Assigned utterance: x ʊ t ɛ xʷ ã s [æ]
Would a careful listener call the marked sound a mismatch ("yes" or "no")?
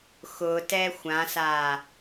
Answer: yes